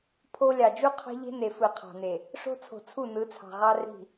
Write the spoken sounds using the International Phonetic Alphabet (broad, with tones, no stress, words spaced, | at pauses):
pʰo˦ lʲɑ˨d͡ʒu˦ qʰɑ̤˦ʎe̤˦ne˨ fɯ˨qʰɑ̤˨ne˨ | ʂo̤˦t͡sʰo̤˨t͡sʰu˦˨ nɯ˨˦t͡sʰɑ̤˨ʁɑ˦ ri̤˦˨